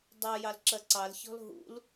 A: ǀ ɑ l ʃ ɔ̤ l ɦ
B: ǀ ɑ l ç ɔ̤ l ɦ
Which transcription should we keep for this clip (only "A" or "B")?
B